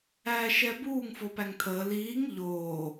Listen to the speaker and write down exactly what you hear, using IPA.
æː ʃ ɛ b uː ŋ f o p æ ŋ t̪ʰ əː l iː ŋ ʎ oː

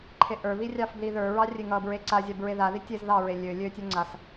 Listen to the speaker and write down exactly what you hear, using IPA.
ǃʰ e ʔ ə˞ β i rʲ ɑ f b l i ð ə˞ ɹ ɑ rʲ e ŋ ʌ b ɹ e ǀ a zʲ a b ɹ e ð a ð i tʲ e z ð ɑ ɹ e lʲ ø lʲ ø tʲ ø ŋ͡ǀ a s

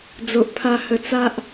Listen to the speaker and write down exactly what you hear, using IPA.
d͡z o˨ ʔ pʰ a˧ h ə˧ t͡s a˦ ʔ

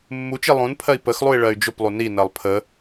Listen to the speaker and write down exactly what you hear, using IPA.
mː u t͡ʃ i lˠ ũ n pʰ ɜ i̯ p ə x lˠ u i̯ ɭ ɜ y̯ d͡ʒ ʊ p lˠ u n i n ɜ lˠ pʰ ə

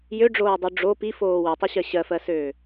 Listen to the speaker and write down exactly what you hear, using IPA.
j ø ɖ͡ʐ oː dˤ u ɖ͡ʐ o p i f oː w ø tˤ ø ɕ ɜ ɕ ɜ f ɜ s øː

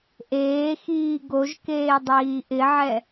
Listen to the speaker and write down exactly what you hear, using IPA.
ʔ eː x iː ɡ o ʒ k eː dˤ iː ʔ ɪ ʕ ɛ

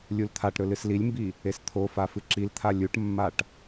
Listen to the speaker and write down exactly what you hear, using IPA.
lʲ u l t̪ʰ a ʈ ɾ ɵ l ɨ s l i lʲ m b i | e s t̪ʰ o f a f ɨ ǁ i l t̪ʰ a lʲ u ʈ mː a ʈ

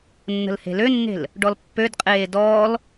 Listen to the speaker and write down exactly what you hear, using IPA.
nː ə̤ l h e̤ l ø nː e̤ l | ɖ ɔ l pː ø d qʼ eː d ɔː l

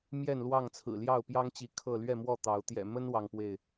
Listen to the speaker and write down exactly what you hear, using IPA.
m j ɛ˥˨ n l w ɑ˥˨ ŋ t͡sʰ ɹ̩˨˩ l j ɑ˥˨ ʊ̯ p j ɑ˦ ŋ t͡ɕ i˨˦ kʰ ɤ˥˨ l ɥ ɛ˥˨ m w ɔ˥˨ t̪ ɑ˨˦ ʊ̯ t̪ j ɛ̰˨˩ m ə˦ n w ɑ˦ ŋ p w e˥˨ ɪ̯

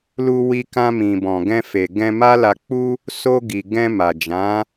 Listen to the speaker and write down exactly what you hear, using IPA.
l u˧ w i˧ k ã˧ m ĩ˨ b ɔ̃˨ ɡ ɛ̃˧ f e˨ ɡ ɛ̃˧ m a˦ l a˧ k͡p u˦ | s o˧ ɡ i˨ ɡ ɛ̃˧ m a˨ d͡ʒ ã˨˦

